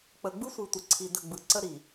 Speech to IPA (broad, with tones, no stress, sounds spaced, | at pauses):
k͡p ə˨ ɡ͡b ɯ˦ sʷ ɨ˨ tʷ ə˨ ǀʰ i˨ d ə˦˨ ɡ͡b ɯ˨ ǀ ə˦ ɾ i˨